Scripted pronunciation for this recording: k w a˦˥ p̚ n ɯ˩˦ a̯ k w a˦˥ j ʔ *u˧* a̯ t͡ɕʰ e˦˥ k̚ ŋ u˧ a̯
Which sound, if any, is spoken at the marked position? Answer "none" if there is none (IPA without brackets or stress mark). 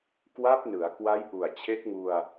u˨˩